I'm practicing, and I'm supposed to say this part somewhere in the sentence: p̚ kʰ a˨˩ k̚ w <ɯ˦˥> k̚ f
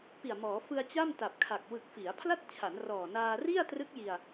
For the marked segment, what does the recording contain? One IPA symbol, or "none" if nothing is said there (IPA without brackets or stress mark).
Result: ɯ˨˩